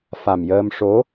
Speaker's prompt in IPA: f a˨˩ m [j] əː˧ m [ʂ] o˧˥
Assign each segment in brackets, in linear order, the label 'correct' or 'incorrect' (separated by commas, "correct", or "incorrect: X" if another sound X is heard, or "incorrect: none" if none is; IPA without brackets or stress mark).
correct, correct